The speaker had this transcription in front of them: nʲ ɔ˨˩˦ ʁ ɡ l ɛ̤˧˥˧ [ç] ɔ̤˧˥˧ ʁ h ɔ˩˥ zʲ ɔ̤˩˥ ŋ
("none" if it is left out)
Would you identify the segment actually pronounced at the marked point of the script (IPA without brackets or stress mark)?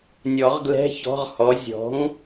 ç